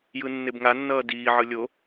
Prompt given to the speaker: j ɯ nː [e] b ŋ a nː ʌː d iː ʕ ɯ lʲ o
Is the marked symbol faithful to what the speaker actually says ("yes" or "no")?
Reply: yes